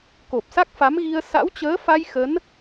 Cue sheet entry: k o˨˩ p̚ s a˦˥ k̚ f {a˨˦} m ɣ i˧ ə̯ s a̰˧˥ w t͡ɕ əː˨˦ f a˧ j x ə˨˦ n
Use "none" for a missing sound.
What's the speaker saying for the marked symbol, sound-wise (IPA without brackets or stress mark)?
a˨˦